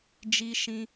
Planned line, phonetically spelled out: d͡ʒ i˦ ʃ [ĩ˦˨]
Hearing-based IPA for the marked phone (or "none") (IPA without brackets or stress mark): ĩ˦